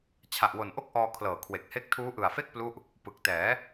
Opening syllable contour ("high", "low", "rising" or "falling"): low